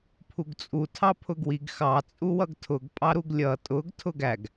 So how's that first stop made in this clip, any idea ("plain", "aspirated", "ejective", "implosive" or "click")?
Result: aspirated